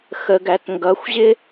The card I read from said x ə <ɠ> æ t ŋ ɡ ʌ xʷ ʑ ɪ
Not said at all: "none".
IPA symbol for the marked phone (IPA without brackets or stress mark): ɡ